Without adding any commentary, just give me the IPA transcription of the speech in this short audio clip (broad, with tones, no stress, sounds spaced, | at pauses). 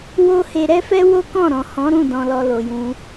w o˦ h e˧ ɾ ɛ˦ f ɛ˦ w o˦ k ɔ̃˦˨ ɾ ɔ̃˨ h ɔ̃˨˦ ɾ ũ˦˨ d ɔ̃˧ l ɔ˧ l o˨ j ũ˧